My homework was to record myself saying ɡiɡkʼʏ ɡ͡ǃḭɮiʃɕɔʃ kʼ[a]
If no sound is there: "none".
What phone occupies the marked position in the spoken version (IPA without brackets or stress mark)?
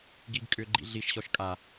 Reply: a